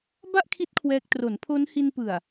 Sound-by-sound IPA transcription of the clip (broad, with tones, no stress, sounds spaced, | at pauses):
b a˥˩ ʔ kʰ i˦˥ t̚ kʰ w ɛː˦˥ k̚ t r o˩˦ n pʰ o˦˥ n h i˧ n p ɯ˨˩ a̯